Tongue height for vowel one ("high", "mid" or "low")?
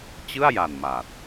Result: high